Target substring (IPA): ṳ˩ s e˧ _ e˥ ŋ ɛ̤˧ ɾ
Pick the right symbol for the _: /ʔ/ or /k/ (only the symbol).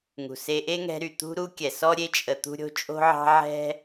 ʔ